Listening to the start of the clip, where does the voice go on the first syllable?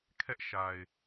high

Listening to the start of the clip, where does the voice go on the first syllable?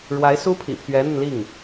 rising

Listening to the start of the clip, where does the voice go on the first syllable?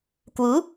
rising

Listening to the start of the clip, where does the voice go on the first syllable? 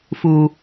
low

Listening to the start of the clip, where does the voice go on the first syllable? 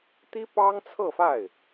high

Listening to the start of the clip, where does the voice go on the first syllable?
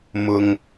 high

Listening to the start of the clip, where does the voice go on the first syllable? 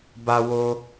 high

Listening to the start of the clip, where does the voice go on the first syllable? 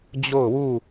falling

